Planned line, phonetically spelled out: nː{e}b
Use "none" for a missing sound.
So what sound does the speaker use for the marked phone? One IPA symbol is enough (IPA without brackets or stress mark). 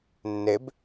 e